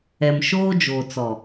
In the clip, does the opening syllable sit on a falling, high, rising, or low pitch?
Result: low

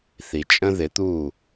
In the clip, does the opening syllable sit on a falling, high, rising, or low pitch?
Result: low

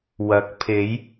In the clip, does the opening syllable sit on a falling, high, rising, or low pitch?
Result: rising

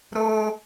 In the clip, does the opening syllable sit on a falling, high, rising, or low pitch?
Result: low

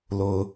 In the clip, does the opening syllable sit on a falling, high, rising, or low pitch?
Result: low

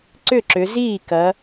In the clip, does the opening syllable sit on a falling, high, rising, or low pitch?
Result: falling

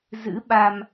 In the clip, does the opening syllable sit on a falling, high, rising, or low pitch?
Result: rising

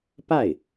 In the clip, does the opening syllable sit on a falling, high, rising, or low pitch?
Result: falling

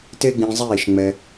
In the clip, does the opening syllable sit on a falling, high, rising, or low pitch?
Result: high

